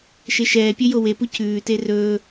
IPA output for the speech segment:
ʃ e ʃ ɛː pʲ ɵ j o w e p u c ʉː t e r ɵː

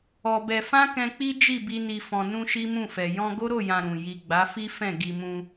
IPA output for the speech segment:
ɔ˧ b ɛ˧ f ã˦ k ɛ̃˧ k͡p i˦ d͡ʒ i˦˨ b i˧ n i˨ f ɔ̃˨ n ũ˧ ʃ i˦ m ũ˦˨ f ɛ˨ j ɔ̃˧ ɡ o˦ ɾ o˦˨ j ã˨ ɾ ũ˨ j i˨ ɡ͡b a˨˦ f i˦ f ɛ̃˦˨ ɡ i˧ m ũ˧

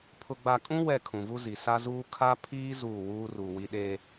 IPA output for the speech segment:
pʰ ʊ˨ ɡ͡b a˨ kʼ ũ˦ w ɛ˦˨ kʰ ũ˨ v u˦ z i˨ s a˦ z uː˦ kʰ a˦ pʰ iː˦ z uː˦˨ w uː˦ r u˨ w i˦ ɗ e˦

